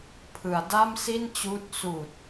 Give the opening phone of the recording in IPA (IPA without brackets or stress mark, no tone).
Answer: pʰ